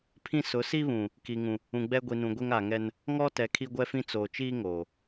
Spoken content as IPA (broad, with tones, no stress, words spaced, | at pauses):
pʰĩ˦ sʊ˨˦si˦βũ˨ | ki˨ŋũ˨ | ũ˨ɡ͡bɛ˦ ɡʷi˨nũ˨ɡʷe˦ŋ a˨ŋɛ˦n | ŋɔ˦tɛ˨ kʰi˦ɡʷɛ˦fĩ˦ t͡soː˨t͡ʃiː˦ ŋoː˨